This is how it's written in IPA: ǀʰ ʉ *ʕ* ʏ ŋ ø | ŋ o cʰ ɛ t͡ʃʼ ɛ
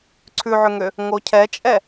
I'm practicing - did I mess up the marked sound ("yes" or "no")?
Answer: no